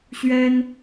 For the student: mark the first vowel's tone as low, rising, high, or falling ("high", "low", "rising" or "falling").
high